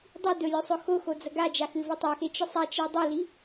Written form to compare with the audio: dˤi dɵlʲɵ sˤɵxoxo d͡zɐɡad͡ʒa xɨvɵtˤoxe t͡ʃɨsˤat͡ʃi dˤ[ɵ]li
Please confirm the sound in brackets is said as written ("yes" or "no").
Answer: no